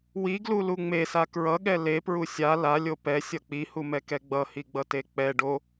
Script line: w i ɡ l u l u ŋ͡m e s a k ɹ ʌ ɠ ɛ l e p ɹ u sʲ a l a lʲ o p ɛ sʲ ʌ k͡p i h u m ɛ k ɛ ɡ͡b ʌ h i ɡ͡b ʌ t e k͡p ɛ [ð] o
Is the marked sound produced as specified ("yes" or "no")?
no